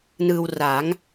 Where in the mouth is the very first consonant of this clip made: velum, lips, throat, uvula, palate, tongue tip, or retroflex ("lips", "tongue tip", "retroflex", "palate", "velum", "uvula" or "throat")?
tongue tip